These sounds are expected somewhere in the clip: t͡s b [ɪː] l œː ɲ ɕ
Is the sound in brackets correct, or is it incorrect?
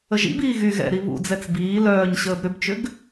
incorrect